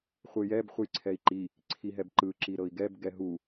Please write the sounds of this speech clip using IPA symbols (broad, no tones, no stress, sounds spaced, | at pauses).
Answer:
χʷ ɯ j ɛ b χʷ ɯ j ǀʰ ɛ i̯ ǃ i | ǀʰ i ɦ ɛ b ǃ ɯ ǁ i ɾ ɤ i̯ ɡ ɛ b ɡ ɛ ɦ u